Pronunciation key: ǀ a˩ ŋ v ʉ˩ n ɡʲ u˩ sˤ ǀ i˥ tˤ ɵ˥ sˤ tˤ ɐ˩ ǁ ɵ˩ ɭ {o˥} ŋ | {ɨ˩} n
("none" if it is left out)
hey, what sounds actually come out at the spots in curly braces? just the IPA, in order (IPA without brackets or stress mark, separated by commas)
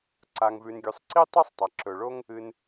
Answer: o˥, ɨ˩